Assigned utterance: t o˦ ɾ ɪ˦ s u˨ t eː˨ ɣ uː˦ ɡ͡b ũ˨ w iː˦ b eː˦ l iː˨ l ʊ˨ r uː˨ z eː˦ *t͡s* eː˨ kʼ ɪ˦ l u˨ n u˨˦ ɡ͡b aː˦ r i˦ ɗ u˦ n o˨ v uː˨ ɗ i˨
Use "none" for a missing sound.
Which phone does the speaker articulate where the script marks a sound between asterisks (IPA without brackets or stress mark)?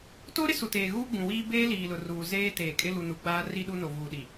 t